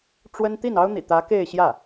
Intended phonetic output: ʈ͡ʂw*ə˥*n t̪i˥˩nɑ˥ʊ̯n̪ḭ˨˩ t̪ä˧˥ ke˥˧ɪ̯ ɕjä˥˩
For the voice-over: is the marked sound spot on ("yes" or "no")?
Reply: yes